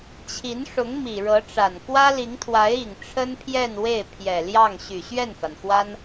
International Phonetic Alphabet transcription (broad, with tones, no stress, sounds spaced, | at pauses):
t͡ɕʰ i˧˥ n ʂ ʊ˧˥ ŋ m i˨˩ ɻ ɤ˧˥ ʈ͡ʂ a˨˩ n k w ä˥ l i˧˥ ŋ t̪ʰ w a˧˥ ɪ̯ i˨˩ ŋ ʈ͡ʂʰ ə˥ n pʰ j ɛ˥˧ n w e˥˩ ɪ̯ pʰ j ɛ˨˩ l j ɑ˥˩ ŋ ɕ y˨˩ ɕ ɥ ɛ˥˩ n f a˩ n x w a˥ n